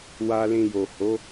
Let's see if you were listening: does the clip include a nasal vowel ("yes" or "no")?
yes